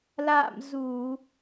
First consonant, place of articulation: alveolar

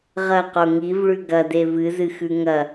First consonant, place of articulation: uvular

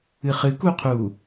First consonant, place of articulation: uvular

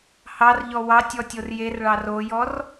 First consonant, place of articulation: glottal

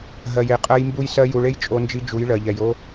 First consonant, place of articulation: glottal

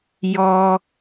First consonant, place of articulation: palatal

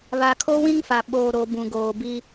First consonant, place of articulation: labial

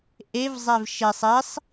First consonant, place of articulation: glottal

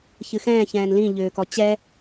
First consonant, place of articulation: palatal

